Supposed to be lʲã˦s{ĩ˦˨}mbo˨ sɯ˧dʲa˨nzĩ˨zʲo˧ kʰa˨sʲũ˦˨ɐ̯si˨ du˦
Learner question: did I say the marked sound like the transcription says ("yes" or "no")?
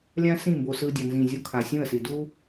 yes